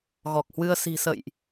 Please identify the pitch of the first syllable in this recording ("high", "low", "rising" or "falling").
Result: low